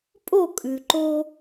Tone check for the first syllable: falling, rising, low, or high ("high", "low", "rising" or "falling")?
falling